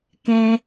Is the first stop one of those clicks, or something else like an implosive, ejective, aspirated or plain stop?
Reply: plain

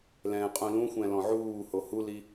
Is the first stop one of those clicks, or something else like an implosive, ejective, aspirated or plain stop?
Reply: ejective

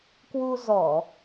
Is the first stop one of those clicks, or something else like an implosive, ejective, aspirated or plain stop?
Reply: plain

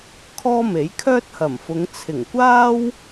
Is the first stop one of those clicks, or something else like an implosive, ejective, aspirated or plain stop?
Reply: aspirated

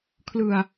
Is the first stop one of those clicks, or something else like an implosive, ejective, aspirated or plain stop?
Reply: aspirated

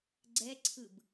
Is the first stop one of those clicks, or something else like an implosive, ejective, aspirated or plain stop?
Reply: click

